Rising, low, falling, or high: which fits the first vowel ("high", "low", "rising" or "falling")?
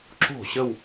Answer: falling